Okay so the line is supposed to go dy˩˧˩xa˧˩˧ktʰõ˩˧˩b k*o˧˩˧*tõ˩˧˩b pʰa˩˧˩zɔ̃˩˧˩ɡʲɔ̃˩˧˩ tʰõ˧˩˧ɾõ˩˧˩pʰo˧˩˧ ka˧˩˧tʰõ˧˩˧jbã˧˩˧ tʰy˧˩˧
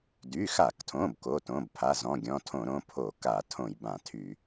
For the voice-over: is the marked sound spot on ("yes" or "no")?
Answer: no